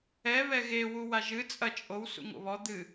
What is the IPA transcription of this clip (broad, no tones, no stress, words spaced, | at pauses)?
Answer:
ɛ βɛɣe wuwaʒɨ t͡sʼɐ t͡ʃʼow sṵŋo̰βɔ d̪ɨ